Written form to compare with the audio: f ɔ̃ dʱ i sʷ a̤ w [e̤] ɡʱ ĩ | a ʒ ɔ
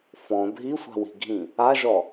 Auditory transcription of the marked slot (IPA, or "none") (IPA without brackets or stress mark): i̤